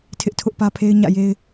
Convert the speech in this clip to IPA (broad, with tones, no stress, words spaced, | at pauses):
tʰɪ˦ʔtʰʊ˦ʔpä˦pʰe˦ɪ̯ ɲä̰˦˨je˦ɪ̯